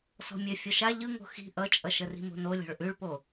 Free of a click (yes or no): yes